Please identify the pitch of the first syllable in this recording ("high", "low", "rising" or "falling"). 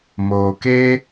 low